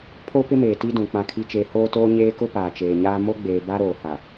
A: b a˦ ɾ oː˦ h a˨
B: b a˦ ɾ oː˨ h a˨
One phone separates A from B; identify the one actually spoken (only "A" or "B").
B